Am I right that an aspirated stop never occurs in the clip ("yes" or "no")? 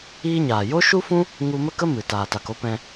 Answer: yes